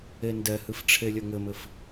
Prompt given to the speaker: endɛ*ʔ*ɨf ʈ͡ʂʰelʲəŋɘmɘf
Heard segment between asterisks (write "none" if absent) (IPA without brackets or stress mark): h